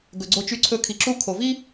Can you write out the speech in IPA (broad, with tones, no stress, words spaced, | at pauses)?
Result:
ɡɵ˨ɡ͡ǀo˧t͡ʃy˧ǀʰɵ˧ kʰi˨ǁu˧ kʰo˨vi˦